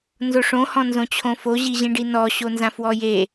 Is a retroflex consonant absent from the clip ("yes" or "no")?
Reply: no